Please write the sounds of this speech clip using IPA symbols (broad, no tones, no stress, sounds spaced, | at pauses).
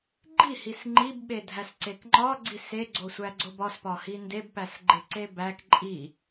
ɡ͡ǃ i h i s ŋ͡ǃ i b ɓ e dʱ æ s ǀ e k ŋ͡ǃ ɒ ɡ͡ǀ i s e ɡ͡ǀ o sʷ æ ɡ͡ǀ o b ɒ s p ɒ h i n d e b p æ s ɡ͡ǃ e ǀ e b æ k ǃʼ i